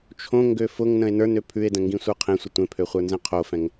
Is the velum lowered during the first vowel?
yes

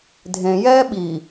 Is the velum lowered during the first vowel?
yes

